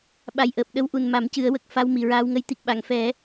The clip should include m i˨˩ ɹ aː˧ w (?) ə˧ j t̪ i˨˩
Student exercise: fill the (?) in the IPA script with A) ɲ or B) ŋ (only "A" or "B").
B